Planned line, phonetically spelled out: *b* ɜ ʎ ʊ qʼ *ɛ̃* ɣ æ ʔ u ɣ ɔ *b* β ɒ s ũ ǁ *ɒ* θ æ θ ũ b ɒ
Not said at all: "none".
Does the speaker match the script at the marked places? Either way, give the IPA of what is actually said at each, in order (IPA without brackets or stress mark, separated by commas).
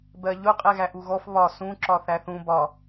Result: b, ɛ, f, ɒ